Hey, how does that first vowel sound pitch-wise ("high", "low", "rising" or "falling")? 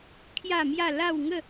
falling